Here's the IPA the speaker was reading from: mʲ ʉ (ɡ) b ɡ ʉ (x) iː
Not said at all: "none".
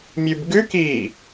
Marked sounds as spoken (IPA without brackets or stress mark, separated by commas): none, k